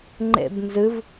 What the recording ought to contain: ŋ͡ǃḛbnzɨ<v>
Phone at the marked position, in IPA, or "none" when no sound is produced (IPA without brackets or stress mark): v